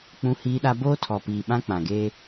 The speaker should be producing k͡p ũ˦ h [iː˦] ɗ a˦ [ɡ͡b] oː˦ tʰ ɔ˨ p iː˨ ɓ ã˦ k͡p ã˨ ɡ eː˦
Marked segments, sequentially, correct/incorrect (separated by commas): correct, incorrect